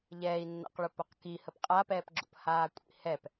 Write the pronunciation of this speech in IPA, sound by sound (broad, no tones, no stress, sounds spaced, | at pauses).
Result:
ʎ ɛː i̯ nː a̰ q ɭ ʊ p ʊ q k i h ə p qʼ a p ɛː p ɡ͡ǁ o̰ p h aː kʷʼ ḭ h ɛ p